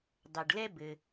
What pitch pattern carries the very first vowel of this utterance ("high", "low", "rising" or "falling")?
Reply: low